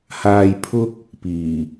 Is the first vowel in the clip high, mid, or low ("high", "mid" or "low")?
low